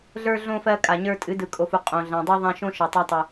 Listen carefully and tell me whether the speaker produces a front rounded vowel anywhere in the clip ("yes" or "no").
no